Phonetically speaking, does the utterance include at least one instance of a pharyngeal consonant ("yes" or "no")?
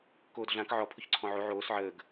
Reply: yes